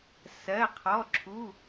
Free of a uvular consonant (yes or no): no